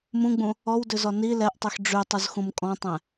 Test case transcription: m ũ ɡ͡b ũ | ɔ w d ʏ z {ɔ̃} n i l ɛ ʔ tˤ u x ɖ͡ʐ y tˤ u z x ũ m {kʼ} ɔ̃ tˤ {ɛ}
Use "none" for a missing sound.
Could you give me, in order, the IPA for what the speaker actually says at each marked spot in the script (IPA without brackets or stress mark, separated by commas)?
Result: ɔ, kʼ, ɛ̃